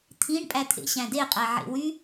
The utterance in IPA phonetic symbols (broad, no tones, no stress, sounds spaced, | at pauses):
t̪ʰ ĩ ɳ pʼ æ t̪ʰ ḛ ɕ æ̃ d e qʼ æ ʕ ḛ w y